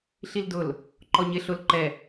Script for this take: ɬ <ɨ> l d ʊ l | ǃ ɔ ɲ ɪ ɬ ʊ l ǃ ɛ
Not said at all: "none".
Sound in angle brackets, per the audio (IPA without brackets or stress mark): i